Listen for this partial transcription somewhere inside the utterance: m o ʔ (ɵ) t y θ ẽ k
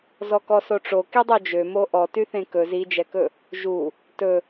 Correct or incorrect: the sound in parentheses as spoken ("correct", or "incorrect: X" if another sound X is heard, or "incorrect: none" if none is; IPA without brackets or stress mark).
incorrect: ɔ